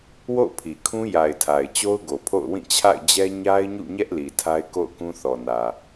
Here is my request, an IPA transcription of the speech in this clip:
w o̰˦˨ ʊ̯ pʰ i˨ kʰ ũ˦ j a˨ ɪ̯ tʰ a˨ ɪ̯ t͡ɕ o˦ ʊ̯ ɡ o˨ pʰ o̰˦˨ ʊ̯ w ĩ˦˨ t͡ɕʰ a̰˦˨ ɪ̯ d͡ʑ ɛ˦ ɲ a˦ ɪ̯ ɲ ṵ˦˨ ɲ ɛ˦ ʔ l i˨ tʰ a˦ ɪ̯ k o̰˦˨ ʊ̯ k ũ˦ θ ɔ˨ n ä˨

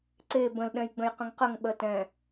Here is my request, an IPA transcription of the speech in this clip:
ǀ e b ə̃ l ɗ ɛ̃ j ɡ͡b ə̃ j q ə̃ ŋ q ə ŋ ɓ ɜ t ɛ̃

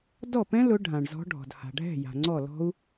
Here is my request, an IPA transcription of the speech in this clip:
d ɔ˥˩ p ɛ̃˦˥ l ʊ˨˦ ɖʱ ã˩ ɳ z ɔ̤˨˦ ɖʱ ɔ̤˩ d h a̤˩ ɖʱ ɛ̤˥˩ j a̤˩ ŋ͡ǀ ɔ˥˩ l ɔ̤˦˥ u̯

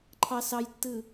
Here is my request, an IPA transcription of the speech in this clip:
ǃʰ ɑ s ɑ j tː ɯ

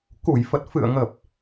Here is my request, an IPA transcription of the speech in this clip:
k u˧˩ j f ə˨˩ t̚ f ɨ̰˧˨ ə̯ ŋ ə˨˩ p̚

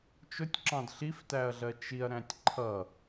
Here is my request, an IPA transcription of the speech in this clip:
t͡ʃ ʊ tʲ ǁ ɑ̃ d ɬ i f t æ ɐ̯ ɮ ɜ t͡ʃ i ɐ̯ ɾ æ̃ tʲ ǃʰ ʌ

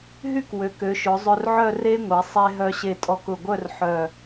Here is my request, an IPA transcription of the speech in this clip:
ɦ y˥ k w ø˩˧ k ø˩˧ ʃ ʊ˩˧ zˤ ø˧ r ʕ œ˥˧ r e˥ ŋʷ e˩˧ sˤ e˧ ɦ œ˧ ɕ e˧˩ tʼ ɔ˧˩ k ʊ˧˩ ɡʷ œ˥˧ r ħ œ˧˩

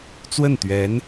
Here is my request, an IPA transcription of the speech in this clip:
t͡s w ə˥˩ n t̪ ɥ ɛ˧˥ n

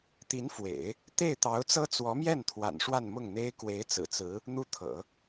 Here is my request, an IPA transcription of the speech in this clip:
t̪ i˧˥ n f w ḛ˨˩˦ ɪ̯ | t̪ e˥˩ ɪ̯ t̪ ɑ˧˥ ʊ̯ t͡s ɤ˥ t͡s w ɔ˧˥ m j ɛ˥˩ n t̪ʰ w a̰˨˩ n ʂ w a˥˧ n m ʊ˥˩ ŋ n̪ e˥ ɪ̯ k w e˧˥ ɪ̯ t͡s ɹ̩˨˩ t͡s ɹ̩˧˥ | n̪ u˧˥ t̪ʰ ɤ̰˨˩˦

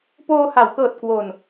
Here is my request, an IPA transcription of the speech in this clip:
p oː˧ h a˩˦ w k ɤː˨˩ t̚ k w o˨˩ n

